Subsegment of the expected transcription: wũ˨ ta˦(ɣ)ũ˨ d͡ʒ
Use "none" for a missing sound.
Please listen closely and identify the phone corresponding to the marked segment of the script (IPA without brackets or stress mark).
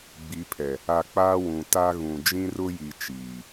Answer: ɣ